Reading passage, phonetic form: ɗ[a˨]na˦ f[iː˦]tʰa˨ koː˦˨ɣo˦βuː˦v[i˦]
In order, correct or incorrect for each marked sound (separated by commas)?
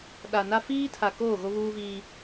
correct, correct, incorrect